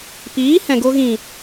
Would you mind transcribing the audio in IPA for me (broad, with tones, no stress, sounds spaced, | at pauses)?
p iː˨˦ h ɛ̃˨ ɡ o˧ ɣ ĩ˨